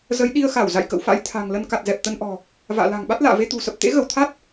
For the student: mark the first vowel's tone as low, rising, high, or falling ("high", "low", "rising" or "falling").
rising